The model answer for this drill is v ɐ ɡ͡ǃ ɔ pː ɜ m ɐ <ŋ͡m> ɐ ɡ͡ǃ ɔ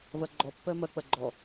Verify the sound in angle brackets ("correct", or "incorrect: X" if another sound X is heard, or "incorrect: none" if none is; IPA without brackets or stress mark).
incorrect: k͡p